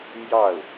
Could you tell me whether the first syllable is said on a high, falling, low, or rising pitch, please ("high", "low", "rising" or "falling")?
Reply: falling